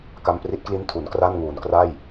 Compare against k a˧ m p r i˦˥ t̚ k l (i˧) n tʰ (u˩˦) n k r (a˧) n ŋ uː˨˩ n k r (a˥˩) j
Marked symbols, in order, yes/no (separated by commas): no, yes, no, yes